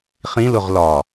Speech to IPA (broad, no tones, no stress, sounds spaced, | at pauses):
χ ĩ l ʊ ʁ l ɒ